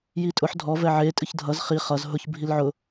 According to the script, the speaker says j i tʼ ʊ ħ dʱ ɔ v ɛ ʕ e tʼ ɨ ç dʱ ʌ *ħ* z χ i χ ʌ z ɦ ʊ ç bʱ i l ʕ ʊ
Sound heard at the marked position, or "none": none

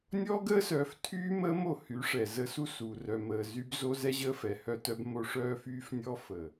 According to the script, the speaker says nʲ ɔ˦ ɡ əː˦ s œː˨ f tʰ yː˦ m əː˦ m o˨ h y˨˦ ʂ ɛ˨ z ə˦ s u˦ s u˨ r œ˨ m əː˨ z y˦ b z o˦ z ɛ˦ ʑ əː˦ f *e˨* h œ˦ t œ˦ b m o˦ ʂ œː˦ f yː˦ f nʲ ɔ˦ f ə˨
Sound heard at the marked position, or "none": ɛ˨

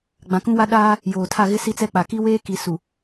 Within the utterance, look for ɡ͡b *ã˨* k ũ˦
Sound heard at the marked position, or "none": ã˨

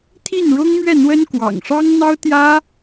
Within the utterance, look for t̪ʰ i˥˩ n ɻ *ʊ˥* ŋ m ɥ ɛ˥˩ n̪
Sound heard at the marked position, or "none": ʊ˥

